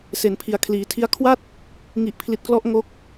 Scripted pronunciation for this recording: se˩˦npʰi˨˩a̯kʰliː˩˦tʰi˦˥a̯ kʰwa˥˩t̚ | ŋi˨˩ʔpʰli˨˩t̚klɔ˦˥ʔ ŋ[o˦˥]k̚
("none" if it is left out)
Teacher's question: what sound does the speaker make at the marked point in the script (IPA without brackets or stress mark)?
o˦˥